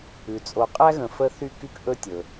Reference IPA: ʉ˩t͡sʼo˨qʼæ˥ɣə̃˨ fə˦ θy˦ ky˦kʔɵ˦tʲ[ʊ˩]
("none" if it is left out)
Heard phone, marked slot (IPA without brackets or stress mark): ɵ˩